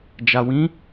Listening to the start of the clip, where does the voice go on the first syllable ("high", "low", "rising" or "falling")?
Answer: low